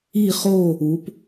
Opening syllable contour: falling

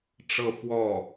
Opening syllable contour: falling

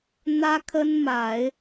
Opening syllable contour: high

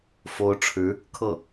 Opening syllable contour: rising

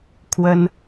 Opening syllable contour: high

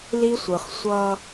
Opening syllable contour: high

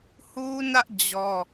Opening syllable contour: high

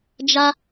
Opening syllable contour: high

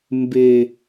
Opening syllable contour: low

